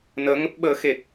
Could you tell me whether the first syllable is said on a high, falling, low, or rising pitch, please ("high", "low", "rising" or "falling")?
rising